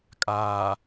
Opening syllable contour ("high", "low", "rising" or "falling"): low